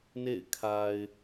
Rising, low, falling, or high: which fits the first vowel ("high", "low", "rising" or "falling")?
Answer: falling